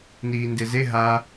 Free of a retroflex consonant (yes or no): yes